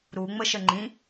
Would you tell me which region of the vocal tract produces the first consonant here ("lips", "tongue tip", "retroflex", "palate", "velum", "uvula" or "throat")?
tongue tip